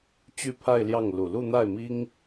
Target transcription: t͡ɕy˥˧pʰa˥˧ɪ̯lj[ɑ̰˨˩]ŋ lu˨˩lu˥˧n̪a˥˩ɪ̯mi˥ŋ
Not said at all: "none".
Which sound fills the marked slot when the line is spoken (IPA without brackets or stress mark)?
ɑ˥˩